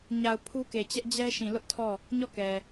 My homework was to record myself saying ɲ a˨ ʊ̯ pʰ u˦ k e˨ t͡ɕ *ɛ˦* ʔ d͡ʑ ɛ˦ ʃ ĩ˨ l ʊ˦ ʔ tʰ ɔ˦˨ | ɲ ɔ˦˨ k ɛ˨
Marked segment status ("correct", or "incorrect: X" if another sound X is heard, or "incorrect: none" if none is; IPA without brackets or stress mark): correct